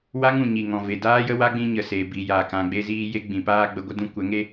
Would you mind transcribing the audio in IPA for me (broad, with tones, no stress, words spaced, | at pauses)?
wa˦ŋũ˨ ɲi˨ŋɔ̃˨ve˨ daː˦jə˦ wa˦ɡ͡bĩ˧ɲə˨ se˨bi˨jaː˨k ã˧ ɡ͡be˦ziː˦ je˦ɡ͡bĩ˨paː˦ ɡ͡bə˧ɡʷə˦ dũ˧kʷɛ˨˦ŋe˦